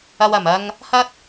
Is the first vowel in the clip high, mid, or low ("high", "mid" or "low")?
low